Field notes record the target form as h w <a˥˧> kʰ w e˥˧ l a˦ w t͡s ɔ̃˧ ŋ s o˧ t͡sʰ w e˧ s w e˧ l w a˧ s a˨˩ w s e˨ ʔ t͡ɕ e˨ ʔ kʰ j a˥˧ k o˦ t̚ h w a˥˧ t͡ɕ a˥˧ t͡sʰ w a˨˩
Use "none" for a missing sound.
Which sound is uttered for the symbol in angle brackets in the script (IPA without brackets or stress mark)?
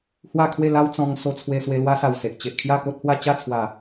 a˥˧